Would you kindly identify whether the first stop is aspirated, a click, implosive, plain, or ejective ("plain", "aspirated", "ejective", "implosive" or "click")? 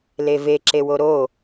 click